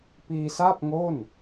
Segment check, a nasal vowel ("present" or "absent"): absent